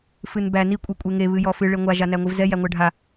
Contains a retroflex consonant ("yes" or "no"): yes